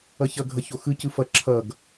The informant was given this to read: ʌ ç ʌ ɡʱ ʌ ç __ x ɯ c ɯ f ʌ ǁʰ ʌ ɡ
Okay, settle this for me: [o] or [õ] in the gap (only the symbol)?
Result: o